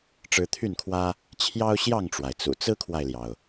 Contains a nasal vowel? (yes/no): no